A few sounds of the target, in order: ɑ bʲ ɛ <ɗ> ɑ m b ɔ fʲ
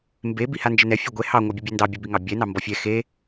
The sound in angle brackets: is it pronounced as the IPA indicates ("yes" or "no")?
no